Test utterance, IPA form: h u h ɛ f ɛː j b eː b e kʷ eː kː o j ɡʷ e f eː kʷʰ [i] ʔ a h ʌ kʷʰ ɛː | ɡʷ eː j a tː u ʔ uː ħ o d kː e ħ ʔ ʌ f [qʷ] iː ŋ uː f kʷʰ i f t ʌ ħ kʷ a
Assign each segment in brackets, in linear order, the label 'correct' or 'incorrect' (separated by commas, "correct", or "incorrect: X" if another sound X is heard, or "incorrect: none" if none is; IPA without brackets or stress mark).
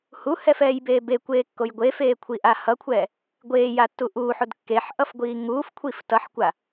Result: correct, incorrect: ɡʷ